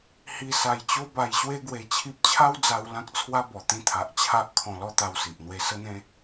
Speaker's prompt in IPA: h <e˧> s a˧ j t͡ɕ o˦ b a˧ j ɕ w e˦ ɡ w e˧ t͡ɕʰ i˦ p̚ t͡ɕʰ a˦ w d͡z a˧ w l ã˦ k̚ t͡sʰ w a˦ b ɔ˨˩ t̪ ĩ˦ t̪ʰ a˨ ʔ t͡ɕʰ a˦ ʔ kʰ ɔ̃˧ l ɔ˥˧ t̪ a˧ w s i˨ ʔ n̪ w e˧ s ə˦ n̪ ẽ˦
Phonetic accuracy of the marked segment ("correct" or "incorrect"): incorrect